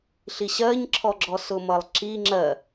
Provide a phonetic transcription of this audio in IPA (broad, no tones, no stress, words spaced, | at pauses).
ɬiɕɜɲǁʰɔɡ͡ǁɔ sʊmʌlˠǁi ŋ͡ǁɜ